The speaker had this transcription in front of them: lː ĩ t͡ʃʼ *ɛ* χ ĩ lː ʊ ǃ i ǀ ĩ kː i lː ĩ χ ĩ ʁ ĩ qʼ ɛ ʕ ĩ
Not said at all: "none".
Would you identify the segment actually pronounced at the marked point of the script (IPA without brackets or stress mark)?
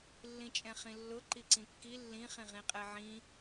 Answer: ɛ̃